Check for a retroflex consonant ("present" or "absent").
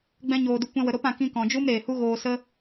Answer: absent